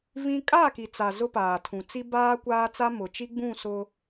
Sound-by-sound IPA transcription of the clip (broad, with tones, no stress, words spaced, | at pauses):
vĩ˦ kʼa˦˨ki˨t͡sa˨ zʊ˦paː˨tʰũ˨t͡si˦ baː˦kʷaː˦t͡sa˦ mʊ˨t͡ʃi˦ɡ͡bũ˦˨ sʊ˦